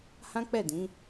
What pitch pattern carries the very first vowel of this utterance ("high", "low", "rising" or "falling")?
high